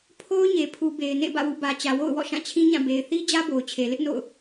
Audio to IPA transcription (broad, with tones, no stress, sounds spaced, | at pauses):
pʰ o˦ ʊ̯ ɲ e˨ pʰ u˨ b e˨ ɪ̯ n ḛ˦˨ b ä̰˦˨ w ṵ˦˨ b ä˨ t͡ɕ ä˨ w o̰˦˨ ʊ̯ w ɔ̰˦˨ ʃ ã˦˨ t͡ɕʰ ĩ˦ ɲ ã˦˨ b e˨ ɪ̯ θ i˦ d͡ʑ ä˦ b o˨ ʊ̯ t͡ɕʰ e˨ l ɪ˦ ʔ n o̰˦˨ ʊ̯